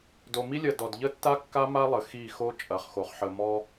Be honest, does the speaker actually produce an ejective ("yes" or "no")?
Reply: yes